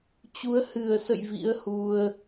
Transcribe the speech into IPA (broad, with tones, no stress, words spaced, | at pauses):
t͡ɕu˨˦ə̯ hɨ˨˩ə̯sə̰˧˨j vḭ˧˥ə̯hu˧ə̯